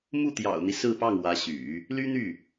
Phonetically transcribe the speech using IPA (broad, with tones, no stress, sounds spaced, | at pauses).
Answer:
m u˥˩ t̪ j ɑ̰˨˩ ʊ̯ n̪ i˦ s ɹ̩˥˧ p ɑ˥˩ ŋ w ä˧˥ ɕ y̰˨˩˦ | l y˥ n̪ y˥˩